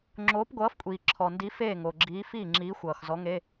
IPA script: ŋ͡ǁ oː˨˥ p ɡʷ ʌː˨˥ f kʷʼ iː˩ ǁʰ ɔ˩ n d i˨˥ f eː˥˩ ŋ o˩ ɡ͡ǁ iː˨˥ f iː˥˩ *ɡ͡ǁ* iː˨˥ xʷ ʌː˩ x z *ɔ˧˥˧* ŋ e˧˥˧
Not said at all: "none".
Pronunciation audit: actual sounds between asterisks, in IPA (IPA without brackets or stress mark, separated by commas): ŋ͡ǁ, ɔ˨˥